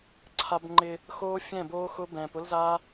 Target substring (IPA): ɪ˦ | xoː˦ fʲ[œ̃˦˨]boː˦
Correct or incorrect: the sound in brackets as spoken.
incorrect: ɛ̃˦˨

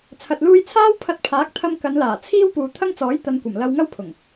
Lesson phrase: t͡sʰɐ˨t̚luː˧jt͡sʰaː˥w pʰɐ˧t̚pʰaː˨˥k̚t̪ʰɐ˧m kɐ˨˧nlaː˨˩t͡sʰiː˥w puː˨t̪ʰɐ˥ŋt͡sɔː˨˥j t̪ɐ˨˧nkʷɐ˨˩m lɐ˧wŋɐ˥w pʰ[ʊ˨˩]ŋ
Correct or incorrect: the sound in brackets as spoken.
correct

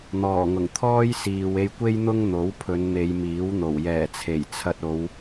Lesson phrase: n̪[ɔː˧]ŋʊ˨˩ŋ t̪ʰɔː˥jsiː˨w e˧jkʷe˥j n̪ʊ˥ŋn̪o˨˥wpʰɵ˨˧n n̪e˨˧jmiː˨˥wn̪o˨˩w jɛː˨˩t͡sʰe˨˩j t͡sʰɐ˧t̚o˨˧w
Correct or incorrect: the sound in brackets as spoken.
incorrect: ɔː˨˩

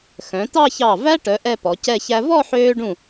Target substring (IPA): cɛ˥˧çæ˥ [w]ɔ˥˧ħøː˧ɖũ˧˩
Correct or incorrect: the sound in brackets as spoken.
incorrect: v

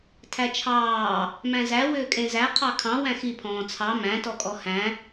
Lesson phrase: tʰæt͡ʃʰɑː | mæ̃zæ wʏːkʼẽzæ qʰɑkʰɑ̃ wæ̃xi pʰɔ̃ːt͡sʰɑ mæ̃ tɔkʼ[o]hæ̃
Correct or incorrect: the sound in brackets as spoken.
incorrect: ɔ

